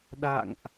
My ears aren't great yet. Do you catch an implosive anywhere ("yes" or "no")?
yes